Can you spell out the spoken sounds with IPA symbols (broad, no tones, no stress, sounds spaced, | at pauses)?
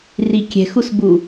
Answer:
r i kʲ ɛ̤ x u s b u